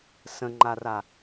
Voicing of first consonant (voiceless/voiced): voiceless